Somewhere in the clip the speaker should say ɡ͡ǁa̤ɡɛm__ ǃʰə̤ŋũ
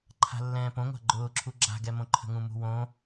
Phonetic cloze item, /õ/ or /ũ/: õ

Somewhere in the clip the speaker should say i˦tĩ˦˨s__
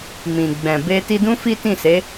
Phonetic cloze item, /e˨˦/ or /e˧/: e˨˦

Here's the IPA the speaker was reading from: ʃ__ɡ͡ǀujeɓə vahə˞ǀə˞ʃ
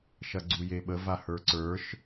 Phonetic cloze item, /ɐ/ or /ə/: ɐ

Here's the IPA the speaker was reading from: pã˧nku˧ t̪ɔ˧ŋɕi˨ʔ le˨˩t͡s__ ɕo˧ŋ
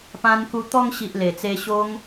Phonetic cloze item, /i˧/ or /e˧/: e˧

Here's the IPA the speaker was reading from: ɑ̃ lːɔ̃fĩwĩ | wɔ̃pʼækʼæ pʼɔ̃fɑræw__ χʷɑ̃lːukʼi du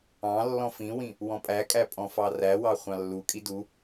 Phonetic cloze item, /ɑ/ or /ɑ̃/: ɑ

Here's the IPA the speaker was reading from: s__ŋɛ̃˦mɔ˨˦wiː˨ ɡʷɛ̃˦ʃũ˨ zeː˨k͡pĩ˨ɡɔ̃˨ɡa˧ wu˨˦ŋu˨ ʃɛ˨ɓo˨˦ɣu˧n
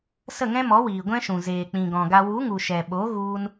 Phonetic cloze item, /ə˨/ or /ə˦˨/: ə˦˨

